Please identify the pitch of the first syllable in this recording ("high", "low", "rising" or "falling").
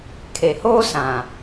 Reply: low